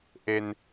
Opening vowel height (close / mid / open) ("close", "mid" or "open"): mid